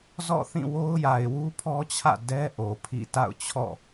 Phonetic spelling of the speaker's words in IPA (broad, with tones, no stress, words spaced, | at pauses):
zɔ̰˦˨θĩ˦˨wo˦ʊ̯ ja˨ɪ̯wu˦pʰɔ˦t͡ɕʰä̰˦˨ dɛ˦ ʔo˨pʰḭ˦˨ ta̰˦˨ʊ̯t͡ɕʰɔ̰˦˨